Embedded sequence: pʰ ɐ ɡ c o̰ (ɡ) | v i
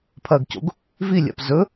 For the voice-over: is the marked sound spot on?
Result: yes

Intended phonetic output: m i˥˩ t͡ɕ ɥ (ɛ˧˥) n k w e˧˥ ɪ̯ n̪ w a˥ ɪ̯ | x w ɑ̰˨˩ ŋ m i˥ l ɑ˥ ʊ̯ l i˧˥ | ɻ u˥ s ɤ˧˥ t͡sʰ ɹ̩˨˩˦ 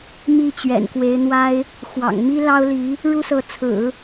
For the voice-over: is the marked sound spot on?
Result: no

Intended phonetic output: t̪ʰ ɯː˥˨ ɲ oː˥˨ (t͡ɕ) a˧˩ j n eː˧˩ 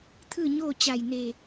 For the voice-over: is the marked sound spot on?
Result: yes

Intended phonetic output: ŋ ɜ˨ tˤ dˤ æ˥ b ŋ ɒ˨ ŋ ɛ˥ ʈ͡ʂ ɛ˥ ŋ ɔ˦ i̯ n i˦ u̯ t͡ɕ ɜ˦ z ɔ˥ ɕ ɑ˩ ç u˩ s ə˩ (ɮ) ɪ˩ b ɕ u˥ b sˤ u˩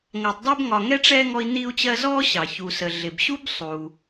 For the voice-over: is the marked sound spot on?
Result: yes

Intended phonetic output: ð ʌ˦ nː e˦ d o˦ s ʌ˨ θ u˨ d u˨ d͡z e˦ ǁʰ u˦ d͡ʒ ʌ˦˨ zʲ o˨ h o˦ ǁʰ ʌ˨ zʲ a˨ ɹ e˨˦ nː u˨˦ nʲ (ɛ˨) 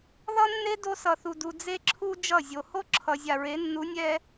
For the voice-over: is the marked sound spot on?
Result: no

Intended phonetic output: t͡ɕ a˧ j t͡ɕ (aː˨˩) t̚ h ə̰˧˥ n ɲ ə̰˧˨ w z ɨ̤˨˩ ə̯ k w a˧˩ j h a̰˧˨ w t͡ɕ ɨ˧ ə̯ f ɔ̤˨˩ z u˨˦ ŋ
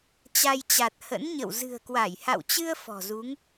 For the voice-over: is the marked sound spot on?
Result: no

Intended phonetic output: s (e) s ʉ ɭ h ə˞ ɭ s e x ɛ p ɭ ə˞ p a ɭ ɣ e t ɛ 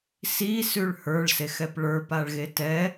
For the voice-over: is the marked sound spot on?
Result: no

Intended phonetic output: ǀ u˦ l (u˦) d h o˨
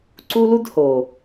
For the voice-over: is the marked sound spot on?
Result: yes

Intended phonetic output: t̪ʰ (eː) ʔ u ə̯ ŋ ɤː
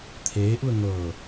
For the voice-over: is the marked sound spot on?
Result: yes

